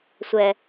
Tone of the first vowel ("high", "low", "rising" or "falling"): low